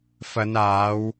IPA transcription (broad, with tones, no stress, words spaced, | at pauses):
fɐ˨˧naː˨˧w